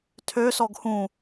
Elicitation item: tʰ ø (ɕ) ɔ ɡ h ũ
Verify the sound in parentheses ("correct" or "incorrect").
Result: incorrect